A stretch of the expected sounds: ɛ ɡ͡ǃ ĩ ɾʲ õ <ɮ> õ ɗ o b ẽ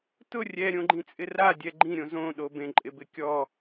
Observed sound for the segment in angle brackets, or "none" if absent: z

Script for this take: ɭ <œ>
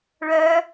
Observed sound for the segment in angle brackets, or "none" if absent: œ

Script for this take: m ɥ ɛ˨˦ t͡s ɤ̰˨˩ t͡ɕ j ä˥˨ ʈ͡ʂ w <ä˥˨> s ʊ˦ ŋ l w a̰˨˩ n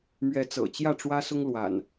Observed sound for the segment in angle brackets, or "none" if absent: ä˦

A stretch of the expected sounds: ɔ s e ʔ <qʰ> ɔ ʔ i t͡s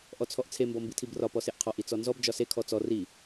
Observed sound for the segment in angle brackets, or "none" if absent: qʰ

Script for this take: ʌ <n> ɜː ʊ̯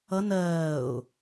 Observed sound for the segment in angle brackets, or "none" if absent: n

